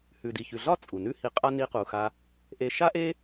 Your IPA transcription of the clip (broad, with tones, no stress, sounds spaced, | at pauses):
h ʉ˨ d i˨ ç ʉ˨ ɮ ɒ˦ t͡sʼ u˨ n ʉ˦ h i˧ qʼ a˦ n i˧ q u˨ x a˧ | ʔ e˧ ʃ a˦ ʔ e˦